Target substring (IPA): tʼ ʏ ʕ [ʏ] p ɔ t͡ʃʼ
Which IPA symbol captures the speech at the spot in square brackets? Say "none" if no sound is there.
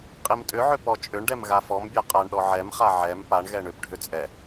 ʏ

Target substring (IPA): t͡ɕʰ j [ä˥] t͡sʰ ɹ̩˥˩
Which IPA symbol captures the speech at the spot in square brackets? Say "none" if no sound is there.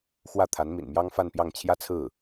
ä˥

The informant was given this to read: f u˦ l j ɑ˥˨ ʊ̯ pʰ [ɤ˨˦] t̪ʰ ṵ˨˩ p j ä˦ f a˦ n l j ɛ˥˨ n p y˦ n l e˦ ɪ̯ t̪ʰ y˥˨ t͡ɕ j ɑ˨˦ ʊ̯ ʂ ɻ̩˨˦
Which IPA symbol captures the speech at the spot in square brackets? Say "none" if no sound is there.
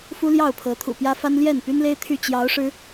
ɤ˨˦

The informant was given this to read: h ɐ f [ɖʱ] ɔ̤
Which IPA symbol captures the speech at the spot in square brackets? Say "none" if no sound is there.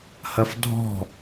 dʱ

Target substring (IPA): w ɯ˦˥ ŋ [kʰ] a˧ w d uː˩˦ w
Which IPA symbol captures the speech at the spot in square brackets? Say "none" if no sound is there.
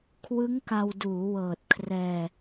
k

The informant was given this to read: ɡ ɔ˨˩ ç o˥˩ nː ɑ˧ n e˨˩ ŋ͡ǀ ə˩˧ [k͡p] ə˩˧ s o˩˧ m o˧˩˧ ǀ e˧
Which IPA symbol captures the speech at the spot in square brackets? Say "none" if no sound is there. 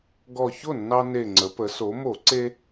p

